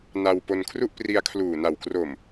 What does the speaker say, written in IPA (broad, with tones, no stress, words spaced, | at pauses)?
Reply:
na˧wpo˧n kʰru˥˩ʔpri˧a̯kʰluː˨˩na˨˩w kro˨˩m